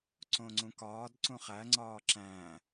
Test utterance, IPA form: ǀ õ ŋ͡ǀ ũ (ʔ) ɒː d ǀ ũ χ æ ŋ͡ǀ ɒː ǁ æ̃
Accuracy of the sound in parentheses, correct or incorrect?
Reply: incorrect